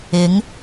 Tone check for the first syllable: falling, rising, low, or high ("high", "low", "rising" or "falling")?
rising